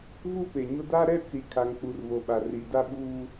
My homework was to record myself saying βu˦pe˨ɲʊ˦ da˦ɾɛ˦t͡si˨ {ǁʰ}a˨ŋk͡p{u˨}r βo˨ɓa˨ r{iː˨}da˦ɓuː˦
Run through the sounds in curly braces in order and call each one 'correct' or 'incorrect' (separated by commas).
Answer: incorrect, correct, incorrect